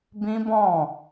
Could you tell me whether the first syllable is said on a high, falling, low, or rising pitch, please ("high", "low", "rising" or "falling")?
high